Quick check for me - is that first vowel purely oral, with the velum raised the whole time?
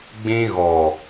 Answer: no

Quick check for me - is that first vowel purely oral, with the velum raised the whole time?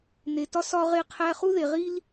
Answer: yes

